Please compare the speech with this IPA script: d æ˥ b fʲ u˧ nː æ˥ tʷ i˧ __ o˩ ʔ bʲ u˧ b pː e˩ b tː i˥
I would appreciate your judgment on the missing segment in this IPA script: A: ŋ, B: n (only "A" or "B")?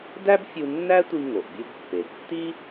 A